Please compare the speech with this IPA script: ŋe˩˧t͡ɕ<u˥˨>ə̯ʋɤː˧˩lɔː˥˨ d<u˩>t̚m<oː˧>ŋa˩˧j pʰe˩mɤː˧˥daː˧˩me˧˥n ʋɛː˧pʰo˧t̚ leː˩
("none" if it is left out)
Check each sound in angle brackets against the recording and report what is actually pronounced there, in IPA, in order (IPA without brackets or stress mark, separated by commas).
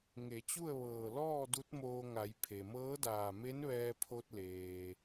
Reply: u˥˨, u˧˥, oː˧